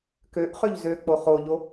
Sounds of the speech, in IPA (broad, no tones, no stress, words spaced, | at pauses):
køʔ χøʎzøk͡po χoʎo